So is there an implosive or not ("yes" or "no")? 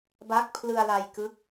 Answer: no